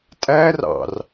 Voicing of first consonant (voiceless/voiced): voiceless